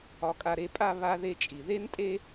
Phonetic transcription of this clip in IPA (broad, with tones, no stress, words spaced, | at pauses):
ɒ˨kʼa˨ɾe˨pʼa˦˨ βa˥ðe˥t͡ʃʼi˨ ðe˥ntʼe˥